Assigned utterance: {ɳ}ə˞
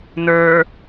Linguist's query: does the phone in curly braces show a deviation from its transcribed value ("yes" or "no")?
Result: yes